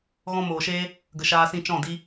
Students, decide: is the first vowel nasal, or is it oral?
nasal